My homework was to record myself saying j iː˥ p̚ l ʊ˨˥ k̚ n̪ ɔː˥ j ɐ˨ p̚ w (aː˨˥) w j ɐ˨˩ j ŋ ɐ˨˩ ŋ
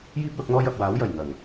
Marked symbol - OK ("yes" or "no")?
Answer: yes